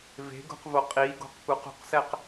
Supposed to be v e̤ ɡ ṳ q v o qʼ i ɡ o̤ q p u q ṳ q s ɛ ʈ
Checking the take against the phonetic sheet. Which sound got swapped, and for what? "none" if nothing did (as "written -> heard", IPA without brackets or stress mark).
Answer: ʈ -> q